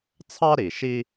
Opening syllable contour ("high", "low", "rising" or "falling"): high